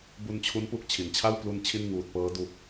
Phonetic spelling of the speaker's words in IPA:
b u˧ n t͡ɕʰ u˦˥ n p u˥˩ k̚ t͡ɕʰ i˩˦ n t͡ɕʰ a˥˩ w p l u˧ n t͡ɕʰ i˥˩ n ŋ uː˨˩ t̚ p ɤː˦˥ d u˨˩ k̚

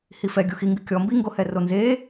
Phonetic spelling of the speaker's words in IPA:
h i f ɛ ɡʲ u x i ŋ ɡ ɨ kʲ ɔ m b i ŋ ɡ o h ɛ r o n z e

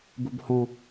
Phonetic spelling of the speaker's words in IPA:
b u b h ɔ̃

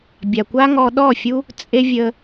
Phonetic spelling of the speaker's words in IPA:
bʲ a˨ kʷ a˦ ŋ ɔ˧ ɗ ɔ˦˨ fʲ u˦ | t͡sʼ e˦ vʲ ə˧

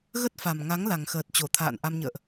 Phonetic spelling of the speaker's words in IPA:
ɣ ə˦˥ t̚ f a˨˩ m ŋ a˨˦ ŋ l a˨˩ ŋ x əː˨˩ t̚ t͡ɕ o˧˩ t̪ʰ a̰ː˧˨ n ʔ a˧ m ɲ ə̰ː˧˨ ʔ

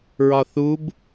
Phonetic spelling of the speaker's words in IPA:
ɹ ɒ θ u b

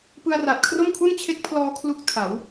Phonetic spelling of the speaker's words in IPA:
p ɯ˧ a̯ r a˨˩ t̚ kʰ r o˥˩ m kʰ u˥˩ n t͡ɕʰ e˦˥ k̚ pʰ l ɔː˧ kʰ l u˦˥ k̚ tʰ a˩˦ w

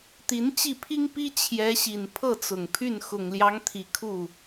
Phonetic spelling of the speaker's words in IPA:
t̪ i˧˥ n t͡ɕ i˥˩ pʰ i˥ ŋ p i˥ t͡ɕʰ j ɛ˧˥ ɕ i˨˩ n pʰ ɤ˥˩ t͡s ʊ˨˩ ŋ pʰ y˥˩ n x ʊ˨˩ ŋ l j ɑ˧˥ ŋ t̪ʰ i˨˩ kʰ u˥˩

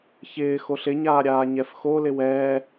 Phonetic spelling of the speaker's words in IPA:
ç ɪː x o ɬ ɪ ɲ aː ɾʲ aː ɲ ɛ f x o l ɪ w ɛː

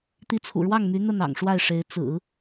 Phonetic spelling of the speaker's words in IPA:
t̪ i˧˥ t͡sʰ ṵ˨˩ ɻ w ɑ˥˩ ŋ m y˧˥ n̪ ə˥˩ n ɑ̰˨˩ ŋ ʂ w a˥˩ ɪ̯ ʂ e˧˥ ɪ̯ t͡s ɹ̩˨˩˦

